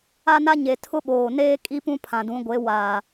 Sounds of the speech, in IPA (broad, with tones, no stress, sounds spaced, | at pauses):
a˦ n a˦ ɲ e˨ tʰ ʊ˦ ɓ oː˨ n eː˦ kʼ i˦ p ũ˦ pʰ ã˨ d ũ˨˦ ɡʷ e˨˦ w aː˨